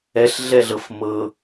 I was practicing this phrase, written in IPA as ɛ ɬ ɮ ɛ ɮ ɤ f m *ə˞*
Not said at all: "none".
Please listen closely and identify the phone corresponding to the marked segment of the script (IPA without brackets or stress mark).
ɤ